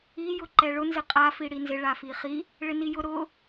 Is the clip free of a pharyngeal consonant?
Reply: yes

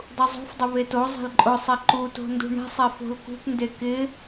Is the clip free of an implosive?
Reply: yes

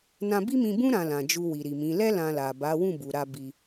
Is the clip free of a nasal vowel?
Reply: no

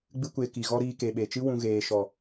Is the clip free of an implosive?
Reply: no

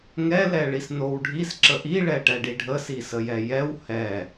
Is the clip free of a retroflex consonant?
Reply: no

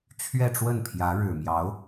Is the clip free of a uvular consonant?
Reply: yes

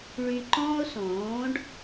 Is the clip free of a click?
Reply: no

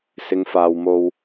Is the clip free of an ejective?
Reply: yes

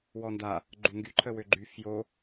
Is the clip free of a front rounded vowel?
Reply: no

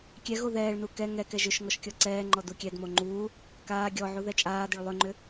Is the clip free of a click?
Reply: no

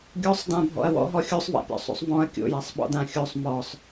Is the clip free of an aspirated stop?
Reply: yes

